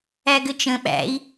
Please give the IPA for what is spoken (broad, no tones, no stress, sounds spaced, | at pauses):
æ ɡ ɘ t͡ʃ ə̃ ɓ æ̰ i̯